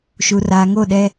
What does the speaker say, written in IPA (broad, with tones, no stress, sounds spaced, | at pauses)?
ʃ u˨ r aː˨ ŋ o˦˨ ɗ ɛ˦